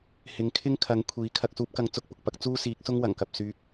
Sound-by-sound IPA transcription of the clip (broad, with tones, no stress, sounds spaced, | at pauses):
h ɪ˨˧ ŋ kʰ ɪ˥ ŋ kʰ ɐ˨˧ ŋ kʷʰ iː˨˥ kʰ ɐ˨ k̚ s uː˧ p̚ k ɐ˨˥ ŋ t͡s ʊ˨˥ k̚ p ʊ˨ k̚ p ɐ˧ k̚ t͡s uː˥ s iː˨˥ k̚ s ʊ˥ ŋ w ɐ˨˩ ŋ k ɐ˨ p̚ s yː˧ k̚